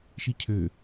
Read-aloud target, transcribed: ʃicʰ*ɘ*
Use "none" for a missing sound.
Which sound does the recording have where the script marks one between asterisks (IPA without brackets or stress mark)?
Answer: ø